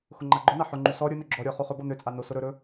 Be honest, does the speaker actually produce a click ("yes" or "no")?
yes